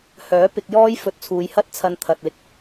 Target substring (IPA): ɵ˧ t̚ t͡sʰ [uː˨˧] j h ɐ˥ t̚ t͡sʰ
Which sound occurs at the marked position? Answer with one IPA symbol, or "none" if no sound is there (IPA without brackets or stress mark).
uː˨˧